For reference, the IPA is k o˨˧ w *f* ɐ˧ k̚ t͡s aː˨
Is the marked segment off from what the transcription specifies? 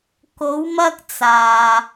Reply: yes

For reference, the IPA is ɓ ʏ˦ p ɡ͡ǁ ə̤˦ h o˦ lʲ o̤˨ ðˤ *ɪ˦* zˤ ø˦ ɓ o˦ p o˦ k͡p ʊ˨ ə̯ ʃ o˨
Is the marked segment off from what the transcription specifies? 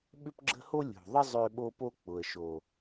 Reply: yes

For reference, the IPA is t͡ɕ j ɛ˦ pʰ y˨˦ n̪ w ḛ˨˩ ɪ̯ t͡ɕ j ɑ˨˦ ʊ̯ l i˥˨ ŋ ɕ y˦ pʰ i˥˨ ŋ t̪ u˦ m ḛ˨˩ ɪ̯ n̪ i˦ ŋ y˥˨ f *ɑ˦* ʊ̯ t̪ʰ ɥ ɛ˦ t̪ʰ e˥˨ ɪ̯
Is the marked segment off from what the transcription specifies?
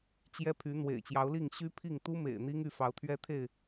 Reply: yes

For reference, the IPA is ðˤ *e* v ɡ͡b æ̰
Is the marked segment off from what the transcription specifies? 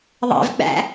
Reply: yes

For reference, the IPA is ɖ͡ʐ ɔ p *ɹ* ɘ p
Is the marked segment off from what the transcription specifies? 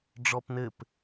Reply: yes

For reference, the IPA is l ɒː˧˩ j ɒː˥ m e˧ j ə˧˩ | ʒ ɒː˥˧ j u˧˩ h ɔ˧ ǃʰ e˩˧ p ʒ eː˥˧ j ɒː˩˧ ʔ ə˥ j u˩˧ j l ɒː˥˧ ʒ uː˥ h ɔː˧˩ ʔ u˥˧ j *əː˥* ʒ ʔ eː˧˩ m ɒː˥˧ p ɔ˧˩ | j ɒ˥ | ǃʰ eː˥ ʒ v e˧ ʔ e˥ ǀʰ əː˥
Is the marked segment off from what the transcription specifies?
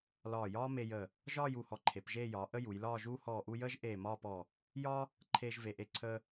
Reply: no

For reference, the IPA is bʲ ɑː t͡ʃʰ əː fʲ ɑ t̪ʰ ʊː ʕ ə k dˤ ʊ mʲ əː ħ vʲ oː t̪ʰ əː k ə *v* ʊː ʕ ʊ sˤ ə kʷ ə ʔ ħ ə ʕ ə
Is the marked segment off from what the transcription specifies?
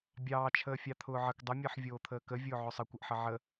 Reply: yes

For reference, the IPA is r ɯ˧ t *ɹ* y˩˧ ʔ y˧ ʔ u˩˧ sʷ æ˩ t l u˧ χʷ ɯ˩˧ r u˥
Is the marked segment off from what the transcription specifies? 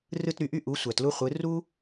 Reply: yes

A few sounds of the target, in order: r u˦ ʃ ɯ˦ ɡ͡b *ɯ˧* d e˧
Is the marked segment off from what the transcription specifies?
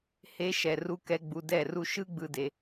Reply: no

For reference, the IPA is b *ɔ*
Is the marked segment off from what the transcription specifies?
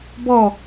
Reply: no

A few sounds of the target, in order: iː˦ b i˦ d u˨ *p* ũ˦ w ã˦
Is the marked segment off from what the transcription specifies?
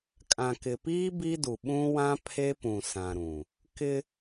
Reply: yes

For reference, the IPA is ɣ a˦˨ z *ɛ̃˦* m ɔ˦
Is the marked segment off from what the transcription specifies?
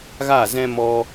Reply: no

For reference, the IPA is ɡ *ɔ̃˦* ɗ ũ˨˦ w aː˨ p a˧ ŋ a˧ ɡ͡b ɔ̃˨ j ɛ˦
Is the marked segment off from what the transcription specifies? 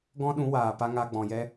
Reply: no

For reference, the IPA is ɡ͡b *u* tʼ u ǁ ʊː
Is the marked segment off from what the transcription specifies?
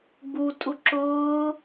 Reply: no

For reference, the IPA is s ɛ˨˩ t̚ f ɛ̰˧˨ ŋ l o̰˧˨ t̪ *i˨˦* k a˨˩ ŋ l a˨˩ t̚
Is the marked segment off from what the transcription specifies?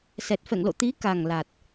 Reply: no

